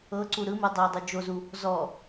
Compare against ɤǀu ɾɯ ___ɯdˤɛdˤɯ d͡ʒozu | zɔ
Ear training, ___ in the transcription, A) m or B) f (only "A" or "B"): A